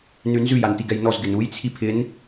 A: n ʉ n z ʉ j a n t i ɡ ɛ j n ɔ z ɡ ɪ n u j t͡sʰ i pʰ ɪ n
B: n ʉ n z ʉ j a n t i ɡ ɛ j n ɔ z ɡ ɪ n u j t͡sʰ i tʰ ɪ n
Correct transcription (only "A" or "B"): A